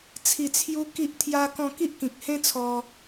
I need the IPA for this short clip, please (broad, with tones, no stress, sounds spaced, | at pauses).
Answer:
t͡sʰ i˨˩ t͡sʰ j u˧ k i˦ ʔ t̪ʰ j a˦ k ɔ̃˥˧ k i˦ ʔ k ĩ˨ k̚ h ẽ˦ t͡sʰ ɔ˧